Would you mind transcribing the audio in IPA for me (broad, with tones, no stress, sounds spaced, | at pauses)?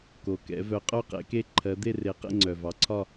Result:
k o˨˩ k ɛ̰˨˥ v œ˨˥ qʼ œ˥˨ q ḛ˨˥ k e˥˨ ǃʰ ɜ˨˥ d̪ e˥˨ r e˨˥ q ḛ˥˨ ŋ͡ǀ œ˨˩ v ɑ˨˥ ǀʰ ɒ˥˨